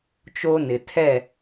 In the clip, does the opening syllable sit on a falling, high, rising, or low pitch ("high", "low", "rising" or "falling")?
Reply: high